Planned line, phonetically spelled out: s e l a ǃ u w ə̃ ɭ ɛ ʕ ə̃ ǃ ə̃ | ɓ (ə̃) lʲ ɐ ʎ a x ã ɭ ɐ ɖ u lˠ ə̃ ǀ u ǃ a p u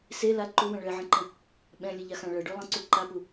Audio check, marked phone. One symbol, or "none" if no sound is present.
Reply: ɛ̃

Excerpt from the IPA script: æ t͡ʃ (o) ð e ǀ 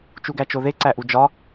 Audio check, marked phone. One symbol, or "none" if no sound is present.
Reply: o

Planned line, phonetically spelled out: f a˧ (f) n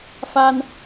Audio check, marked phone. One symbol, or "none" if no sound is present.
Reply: none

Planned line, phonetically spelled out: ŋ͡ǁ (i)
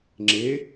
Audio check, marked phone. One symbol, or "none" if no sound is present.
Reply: ɪ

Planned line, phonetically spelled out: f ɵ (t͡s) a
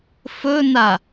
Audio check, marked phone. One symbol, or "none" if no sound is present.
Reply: n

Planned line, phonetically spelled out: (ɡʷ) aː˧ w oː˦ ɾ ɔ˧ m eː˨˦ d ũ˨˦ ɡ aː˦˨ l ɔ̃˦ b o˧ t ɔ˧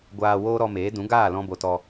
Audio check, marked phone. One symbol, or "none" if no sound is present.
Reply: ɡʷ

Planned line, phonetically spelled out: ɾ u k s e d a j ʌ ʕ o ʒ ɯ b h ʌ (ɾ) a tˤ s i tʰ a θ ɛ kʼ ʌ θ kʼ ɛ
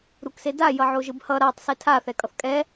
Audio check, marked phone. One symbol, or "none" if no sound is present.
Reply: ɾ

